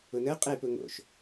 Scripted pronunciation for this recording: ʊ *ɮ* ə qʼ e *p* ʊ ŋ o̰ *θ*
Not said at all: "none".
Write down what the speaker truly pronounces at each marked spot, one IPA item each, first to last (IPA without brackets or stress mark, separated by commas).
n, p, ʃ